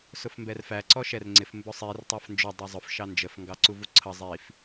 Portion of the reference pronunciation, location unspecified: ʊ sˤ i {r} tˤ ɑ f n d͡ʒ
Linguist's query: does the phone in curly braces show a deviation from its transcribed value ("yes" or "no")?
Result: no